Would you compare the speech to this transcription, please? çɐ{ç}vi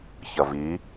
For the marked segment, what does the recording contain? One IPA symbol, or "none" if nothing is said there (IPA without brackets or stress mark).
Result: none